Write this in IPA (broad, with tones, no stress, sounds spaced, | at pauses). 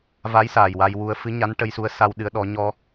v a˧˥ j s aː˨˩ j w a˧ j w u˧ ə̯ f ɨ˧˥ ɲ a˧˥ n ʈ ə˧ j s u˧˥ ə̯ s a˧ w ɗ ɨ˧˥ ə̯ ɗ ɔ˧˥ ɲ ɔ˧